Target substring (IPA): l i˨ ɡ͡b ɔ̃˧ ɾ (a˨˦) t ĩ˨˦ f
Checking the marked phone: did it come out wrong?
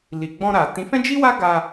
yes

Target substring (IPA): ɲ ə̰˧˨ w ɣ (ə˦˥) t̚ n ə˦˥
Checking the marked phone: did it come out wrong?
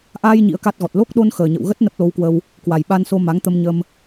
no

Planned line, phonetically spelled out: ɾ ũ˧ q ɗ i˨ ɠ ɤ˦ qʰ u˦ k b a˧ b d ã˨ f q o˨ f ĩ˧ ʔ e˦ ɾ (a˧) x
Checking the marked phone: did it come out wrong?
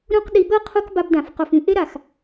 yes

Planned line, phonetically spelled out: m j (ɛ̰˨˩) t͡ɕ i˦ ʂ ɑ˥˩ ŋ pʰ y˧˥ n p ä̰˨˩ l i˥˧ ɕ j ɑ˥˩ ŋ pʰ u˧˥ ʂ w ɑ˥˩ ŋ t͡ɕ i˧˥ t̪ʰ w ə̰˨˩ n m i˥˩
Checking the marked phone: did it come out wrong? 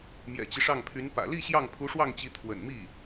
no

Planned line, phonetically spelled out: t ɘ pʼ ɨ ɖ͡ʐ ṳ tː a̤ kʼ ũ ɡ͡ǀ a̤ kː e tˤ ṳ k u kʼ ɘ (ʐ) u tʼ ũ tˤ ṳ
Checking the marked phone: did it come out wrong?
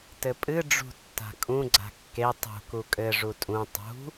no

